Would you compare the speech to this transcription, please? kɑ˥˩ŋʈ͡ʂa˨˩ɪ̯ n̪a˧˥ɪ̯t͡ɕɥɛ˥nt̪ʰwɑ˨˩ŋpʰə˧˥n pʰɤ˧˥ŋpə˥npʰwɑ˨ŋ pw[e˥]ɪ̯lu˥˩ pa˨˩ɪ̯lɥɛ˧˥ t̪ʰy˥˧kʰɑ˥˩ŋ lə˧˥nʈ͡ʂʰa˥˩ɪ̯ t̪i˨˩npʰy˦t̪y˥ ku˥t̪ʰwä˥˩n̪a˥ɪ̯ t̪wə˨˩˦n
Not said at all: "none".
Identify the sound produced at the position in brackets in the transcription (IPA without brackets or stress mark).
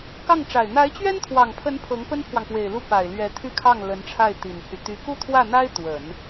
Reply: e˨˩